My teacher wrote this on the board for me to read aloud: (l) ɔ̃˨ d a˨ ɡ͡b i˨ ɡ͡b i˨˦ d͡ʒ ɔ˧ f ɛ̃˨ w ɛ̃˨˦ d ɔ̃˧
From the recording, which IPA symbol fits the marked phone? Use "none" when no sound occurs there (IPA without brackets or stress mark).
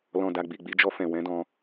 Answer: l